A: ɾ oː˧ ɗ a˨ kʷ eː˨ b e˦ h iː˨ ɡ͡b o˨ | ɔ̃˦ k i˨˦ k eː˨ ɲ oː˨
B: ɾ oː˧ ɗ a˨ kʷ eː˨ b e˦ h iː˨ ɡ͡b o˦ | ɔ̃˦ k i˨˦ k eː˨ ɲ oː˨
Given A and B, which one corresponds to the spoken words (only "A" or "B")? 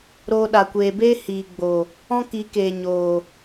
A